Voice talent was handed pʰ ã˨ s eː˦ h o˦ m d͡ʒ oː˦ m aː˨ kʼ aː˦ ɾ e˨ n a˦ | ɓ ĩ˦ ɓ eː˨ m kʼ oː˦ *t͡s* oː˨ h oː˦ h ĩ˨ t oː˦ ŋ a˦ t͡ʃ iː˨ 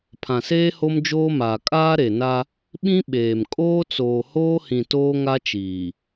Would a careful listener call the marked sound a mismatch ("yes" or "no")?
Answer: no